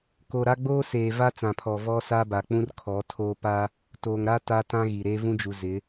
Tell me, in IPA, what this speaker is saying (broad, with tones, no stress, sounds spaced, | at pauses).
k o˨ ɾ a˦ ɡ͡b oː˦ s eː˨ v a˦ t͡s ã˨ pʰ ɔ˨ v ɔ˦ s a˦ b a˨ k͡p ũ˦ r kʰ ɔ˨˦ tʰ oː˦ p a˦ | t oː˨ ŋ ɾ a˦ t a˦ t ã˦ ɣ i˨ ɾ e˦ v ũ˦ d͡ʒ u˨ z ɪ˨˦